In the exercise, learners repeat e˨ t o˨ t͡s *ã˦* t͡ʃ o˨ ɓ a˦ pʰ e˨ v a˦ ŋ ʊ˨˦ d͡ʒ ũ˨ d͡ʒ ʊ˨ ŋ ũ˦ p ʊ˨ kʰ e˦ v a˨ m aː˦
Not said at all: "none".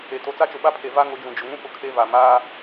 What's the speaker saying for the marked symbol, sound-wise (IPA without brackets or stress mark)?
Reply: a˦